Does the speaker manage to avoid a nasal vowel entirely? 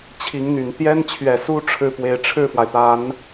yes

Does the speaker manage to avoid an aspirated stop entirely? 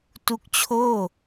no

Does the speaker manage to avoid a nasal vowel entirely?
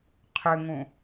no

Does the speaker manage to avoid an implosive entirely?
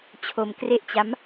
yes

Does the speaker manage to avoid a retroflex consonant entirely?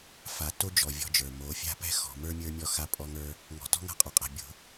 yes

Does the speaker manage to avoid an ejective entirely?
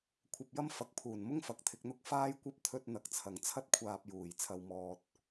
yes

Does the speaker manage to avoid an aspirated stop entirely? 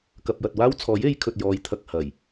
no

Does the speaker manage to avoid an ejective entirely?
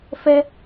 yes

